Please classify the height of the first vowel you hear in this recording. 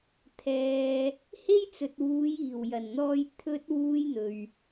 mid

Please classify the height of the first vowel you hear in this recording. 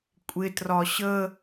high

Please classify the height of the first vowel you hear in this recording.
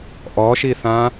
mid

